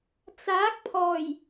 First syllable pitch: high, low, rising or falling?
rising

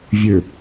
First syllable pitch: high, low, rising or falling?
low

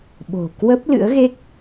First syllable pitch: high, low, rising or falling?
low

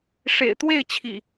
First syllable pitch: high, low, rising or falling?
low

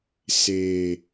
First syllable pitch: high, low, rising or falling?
low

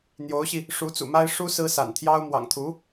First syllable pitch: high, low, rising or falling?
rising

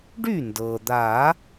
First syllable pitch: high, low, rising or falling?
falling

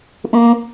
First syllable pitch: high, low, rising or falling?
low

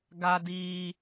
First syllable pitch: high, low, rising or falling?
high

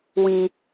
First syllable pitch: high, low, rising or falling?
low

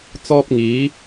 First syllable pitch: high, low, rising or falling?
high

